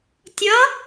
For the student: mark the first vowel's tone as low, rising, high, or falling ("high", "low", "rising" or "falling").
rising